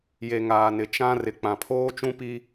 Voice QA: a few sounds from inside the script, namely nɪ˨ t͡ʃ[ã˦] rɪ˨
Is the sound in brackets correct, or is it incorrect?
correct